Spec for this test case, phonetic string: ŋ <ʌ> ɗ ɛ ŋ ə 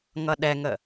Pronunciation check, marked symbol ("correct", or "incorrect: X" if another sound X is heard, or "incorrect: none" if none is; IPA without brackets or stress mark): correct